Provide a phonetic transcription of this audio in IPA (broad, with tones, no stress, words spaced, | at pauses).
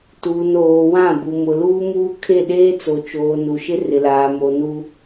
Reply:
tuː˨noː˨wã˦˨ bu˨mʊ˨luː˦ muː˦kʰe˦˨ ɗeː˦t͡so˨t͡ʃoː˨ nu˨ʃɪ˦ rɪ˨laː˨ mo˨nu˦